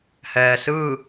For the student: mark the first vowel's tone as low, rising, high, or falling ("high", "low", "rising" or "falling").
low